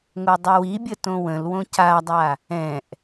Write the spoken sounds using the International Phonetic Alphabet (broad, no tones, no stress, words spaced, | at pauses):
ŋodˤəwibʲə tõwə̃lwõ cadˤa | ɛ̃ʔ